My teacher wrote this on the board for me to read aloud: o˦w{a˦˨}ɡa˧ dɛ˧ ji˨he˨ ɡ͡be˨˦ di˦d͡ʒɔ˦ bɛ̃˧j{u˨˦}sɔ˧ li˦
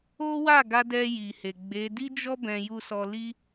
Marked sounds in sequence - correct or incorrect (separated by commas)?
correct, incorrect